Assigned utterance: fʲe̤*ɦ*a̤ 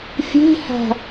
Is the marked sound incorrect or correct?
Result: incorrect